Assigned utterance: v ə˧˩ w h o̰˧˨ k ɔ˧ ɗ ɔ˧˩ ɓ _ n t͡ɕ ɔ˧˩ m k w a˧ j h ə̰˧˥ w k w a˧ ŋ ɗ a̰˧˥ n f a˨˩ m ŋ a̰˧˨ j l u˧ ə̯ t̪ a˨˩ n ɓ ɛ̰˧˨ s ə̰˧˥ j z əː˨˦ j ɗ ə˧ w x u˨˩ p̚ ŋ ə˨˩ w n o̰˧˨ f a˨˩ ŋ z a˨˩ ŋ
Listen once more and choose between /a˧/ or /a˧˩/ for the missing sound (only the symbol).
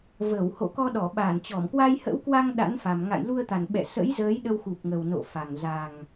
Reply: a˧˩